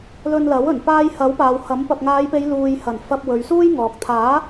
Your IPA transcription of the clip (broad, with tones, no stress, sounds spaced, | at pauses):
l ɵ˧ n l ɐ˨˥ w ɵ˨˩ n p aː˧ j h ɐ˨˥ w p aː˨ w h ɐ˨˥ m p ɐ˨ p̚ ŋ aː˨˧ j p e˨˧ j l uː˨ j h ɐ˨˩ n f ɐ˧ p̚ w ɵ˨˧ ɥ s uː˥ j ŋ ɔː˨ k̚ t̪ʰ aː˨˥